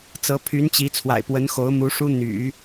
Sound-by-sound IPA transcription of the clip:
t͡s ɤ˧˥ pʰ y˧˥ n t͡ɕ i˧˥ t͡sʰ w a̰˨˩ ɪ̯ p w ə˧˥ n x o˧˥ ʊ̯ m u˧˥ ʂ u˥ n̪ y̰˨˩˦

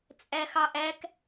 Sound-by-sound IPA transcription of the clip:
t͡sʼ æ x ɑ ʔ æ k

